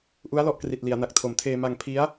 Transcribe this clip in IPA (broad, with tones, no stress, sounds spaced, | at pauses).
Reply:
ʔ u˦˥ a̯ l ɔ˦˥ ʔ k r i˨˩ t̚ l i˩˦ a̯ n a˨˩ k̚ tʰ o˨˩ m tʰ eː˧ m a˧ ŋ pʰ i˦˥ a̯